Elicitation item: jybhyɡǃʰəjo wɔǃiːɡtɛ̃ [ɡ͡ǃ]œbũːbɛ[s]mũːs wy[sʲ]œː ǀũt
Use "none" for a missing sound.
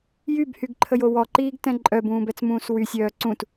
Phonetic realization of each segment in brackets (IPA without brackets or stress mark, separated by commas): ǃʼ, t͡s, sʲ